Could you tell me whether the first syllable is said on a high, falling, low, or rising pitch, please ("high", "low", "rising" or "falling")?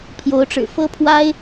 rising